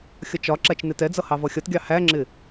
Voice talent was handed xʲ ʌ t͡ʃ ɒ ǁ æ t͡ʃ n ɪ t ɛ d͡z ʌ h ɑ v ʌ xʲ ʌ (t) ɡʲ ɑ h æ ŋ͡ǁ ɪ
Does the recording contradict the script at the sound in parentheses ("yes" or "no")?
no